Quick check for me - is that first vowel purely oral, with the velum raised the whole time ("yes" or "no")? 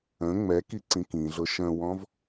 no